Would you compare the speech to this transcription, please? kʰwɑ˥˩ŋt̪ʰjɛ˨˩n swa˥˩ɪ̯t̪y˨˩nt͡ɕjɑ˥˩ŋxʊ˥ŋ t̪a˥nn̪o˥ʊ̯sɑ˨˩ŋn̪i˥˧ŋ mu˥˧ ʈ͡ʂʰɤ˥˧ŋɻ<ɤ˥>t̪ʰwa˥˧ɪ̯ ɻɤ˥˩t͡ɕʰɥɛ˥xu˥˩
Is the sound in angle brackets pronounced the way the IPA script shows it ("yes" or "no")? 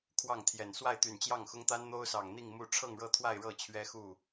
no